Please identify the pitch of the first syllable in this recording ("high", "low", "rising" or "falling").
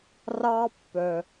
high